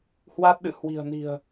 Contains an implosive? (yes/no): yes